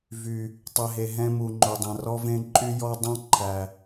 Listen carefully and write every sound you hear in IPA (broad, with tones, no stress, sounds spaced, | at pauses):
v y˨ | tˤ e˨ ɦ e˨ ɦ ɛ̃˦ m u˨ ŋ͡ǃ o˨ dˤ ɛ̃˨ r ɔ˦ v ẽ˦ ǃʼ y˦ j ɔ˦ dˤ ɛ̃˦ ǃʰ æ˨